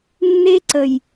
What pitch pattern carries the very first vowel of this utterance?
high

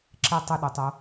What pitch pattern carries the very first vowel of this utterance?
falling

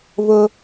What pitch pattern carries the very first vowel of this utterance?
high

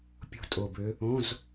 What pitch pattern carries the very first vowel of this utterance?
falling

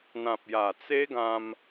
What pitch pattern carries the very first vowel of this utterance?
low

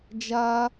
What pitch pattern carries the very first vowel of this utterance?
high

